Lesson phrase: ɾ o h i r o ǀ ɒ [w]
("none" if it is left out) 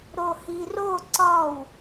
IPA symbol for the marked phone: w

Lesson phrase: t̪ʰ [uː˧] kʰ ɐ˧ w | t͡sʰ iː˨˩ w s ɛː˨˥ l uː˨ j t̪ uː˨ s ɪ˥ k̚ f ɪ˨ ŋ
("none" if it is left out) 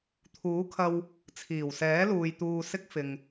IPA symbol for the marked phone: uː˨˥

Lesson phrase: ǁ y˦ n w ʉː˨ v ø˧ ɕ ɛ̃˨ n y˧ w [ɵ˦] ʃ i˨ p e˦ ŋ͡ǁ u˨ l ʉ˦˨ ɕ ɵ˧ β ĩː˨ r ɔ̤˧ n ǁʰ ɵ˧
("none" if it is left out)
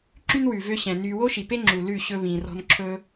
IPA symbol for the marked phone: o˦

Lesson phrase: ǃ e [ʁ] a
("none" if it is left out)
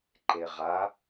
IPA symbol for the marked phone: ʁ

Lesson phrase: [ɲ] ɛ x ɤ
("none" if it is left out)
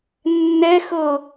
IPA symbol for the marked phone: nː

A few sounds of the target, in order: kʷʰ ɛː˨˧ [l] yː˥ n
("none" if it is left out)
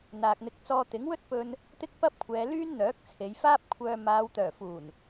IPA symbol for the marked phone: l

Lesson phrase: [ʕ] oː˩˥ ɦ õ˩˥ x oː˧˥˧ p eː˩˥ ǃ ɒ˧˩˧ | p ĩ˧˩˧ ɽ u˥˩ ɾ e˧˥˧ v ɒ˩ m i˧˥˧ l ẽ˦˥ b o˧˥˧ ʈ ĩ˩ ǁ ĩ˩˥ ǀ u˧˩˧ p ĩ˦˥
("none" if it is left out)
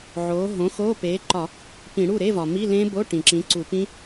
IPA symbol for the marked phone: ʕ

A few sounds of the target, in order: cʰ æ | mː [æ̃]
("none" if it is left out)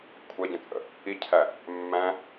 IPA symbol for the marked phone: æ̃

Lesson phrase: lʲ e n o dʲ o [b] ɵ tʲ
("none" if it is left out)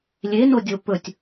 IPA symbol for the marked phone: p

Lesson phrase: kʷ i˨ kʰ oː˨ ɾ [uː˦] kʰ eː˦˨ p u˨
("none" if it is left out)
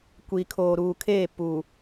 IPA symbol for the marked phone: uː˨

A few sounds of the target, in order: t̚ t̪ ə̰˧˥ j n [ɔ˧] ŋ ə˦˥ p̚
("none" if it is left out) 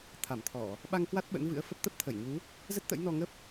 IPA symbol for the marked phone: ɔ˧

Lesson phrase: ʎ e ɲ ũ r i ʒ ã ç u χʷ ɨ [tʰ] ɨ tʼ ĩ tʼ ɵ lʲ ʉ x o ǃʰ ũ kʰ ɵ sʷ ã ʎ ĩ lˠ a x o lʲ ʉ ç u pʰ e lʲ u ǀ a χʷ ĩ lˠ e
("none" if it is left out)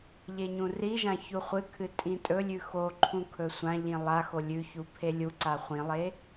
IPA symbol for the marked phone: kʰ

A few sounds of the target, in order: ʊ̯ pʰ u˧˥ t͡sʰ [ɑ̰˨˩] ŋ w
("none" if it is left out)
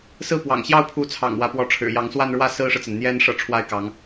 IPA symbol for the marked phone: ɑ̰˨˩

